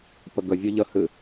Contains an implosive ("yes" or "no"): no